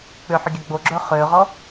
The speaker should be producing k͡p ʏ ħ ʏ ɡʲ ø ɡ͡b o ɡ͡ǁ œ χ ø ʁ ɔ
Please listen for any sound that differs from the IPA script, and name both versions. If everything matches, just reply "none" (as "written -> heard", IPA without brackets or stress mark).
none